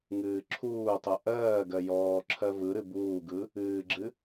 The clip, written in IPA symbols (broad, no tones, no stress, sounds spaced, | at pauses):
ŋ ɨː ǁʰ uː tˤ u ʔ ɜː ɡ ɜ j ɔː ǁʰ ɜ v ɯ ɾ ɨ b uː ɡ ɯ | ɨː ɡ͡ǁ ɨ